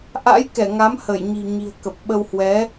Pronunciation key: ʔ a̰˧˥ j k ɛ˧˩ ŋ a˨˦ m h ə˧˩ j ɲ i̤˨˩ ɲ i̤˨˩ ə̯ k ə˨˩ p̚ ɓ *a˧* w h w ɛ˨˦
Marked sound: incorrect: ə˧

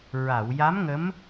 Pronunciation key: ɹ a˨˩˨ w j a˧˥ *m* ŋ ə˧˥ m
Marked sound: correct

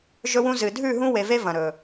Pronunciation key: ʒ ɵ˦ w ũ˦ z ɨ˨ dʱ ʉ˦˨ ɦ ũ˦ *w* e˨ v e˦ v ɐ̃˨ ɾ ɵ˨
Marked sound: correct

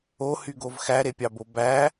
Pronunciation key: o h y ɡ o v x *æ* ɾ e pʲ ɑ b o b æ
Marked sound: correct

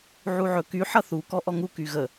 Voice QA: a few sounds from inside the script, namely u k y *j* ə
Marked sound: incorrect: ɣ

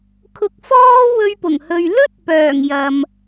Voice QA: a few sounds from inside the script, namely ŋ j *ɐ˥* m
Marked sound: incorrect: ɐ˨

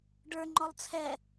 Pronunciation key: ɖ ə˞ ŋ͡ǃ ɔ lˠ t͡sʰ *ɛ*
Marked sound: correct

